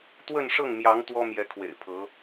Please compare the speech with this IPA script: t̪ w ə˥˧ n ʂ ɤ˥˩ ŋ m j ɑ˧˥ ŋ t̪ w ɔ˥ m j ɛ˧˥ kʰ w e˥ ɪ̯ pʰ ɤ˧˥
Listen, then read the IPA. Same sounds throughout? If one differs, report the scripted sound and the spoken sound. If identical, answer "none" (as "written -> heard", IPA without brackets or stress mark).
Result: e˥ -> ḛ˨˩